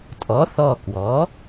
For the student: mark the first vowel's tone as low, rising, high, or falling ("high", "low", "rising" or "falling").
rising